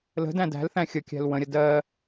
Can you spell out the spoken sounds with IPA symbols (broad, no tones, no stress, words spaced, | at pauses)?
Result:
lə̤dæ̃ dæ̤lθæ̃ xʲəkʲæ̤l wə̃ɾʲə dɜ